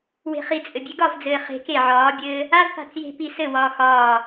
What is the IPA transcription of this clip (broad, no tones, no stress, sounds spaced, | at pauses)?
w e̤ χ i t͡sʼ ɘ bʲ e ɡ ɒ v d͡z ɘː χ e̤ k e ʕ ɒː bʲ ɘː | a v p a̤ t͡s j e̤ p i s ɘ w ɒː x ɒː